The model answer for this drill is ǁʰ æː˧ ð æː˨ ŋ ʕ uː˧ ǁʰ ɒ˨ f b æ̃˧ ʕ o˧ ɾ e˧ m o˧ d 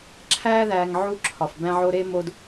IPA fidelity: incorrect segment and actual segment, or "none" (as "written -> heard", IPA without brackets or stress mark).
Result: uː˧ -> u˧